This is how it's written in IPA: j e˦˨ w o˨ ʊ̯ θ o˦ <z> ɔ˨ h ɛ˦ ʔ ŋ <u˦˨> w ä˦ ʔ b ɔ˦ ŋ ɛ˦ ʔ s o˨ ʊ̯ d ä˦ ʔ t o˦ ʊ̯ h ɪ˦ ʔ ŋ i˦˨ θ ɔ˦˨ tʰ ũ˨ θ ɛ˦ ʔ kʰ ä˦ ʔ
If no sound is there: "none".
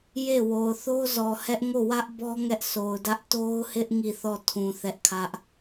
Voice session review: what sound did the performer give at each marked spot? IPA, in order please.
z, o˦˨

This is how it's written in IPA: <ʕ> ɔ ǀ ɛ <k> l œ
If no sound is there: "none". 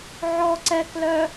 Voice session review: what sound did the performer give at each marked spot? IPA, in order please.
ʕ, k

